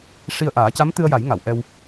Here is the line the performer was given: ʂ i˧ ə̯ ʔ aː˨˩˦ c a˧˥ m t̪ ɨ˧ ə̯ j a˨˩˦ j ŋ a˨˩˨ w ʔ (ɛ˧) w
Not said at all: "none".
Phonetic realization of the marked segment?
ɛ˧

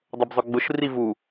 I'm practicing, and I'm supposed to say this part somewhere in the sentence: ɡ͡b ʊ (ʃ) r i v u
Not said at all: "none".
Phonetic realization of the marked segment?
ʃ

